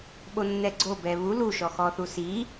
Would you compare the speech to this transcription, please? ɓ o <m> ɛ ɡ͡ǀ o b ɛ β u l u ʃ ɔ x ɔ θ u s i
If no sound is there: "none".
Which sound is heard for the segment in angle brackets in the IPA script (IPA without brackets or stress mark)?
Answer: nː